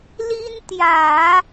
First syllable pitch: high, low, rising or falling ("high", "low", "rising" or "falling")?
high